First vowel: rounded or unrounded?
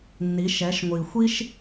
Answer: unrounded